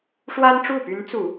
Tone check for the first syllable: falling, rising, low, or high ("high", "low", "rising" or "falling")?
high